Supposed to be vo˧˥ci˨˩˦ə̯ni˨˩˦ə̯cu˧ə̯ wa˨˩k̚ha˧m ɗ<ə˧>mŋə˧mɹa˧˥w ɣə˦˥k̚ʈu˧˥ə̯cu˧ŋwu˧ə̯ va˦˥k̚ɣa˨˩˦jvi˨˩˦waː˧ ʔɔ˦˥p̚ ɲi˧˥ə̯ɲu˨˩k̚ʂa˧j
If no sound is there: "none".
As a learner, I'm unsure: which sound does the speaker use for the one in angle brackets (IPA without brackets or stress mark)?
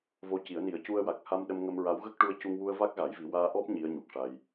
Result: ə˧